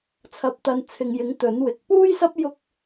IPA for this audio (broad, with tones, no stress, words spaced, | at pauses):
t͡sʰɐ˨˥p̚t̪ɐ˨nt͡sʰɪ˨ŋjɪ˨˥ŋ t̪ɵ˨˥nwɪ˨˥k̚ puː˥j sɐ˥p̚ jʊ˥k̚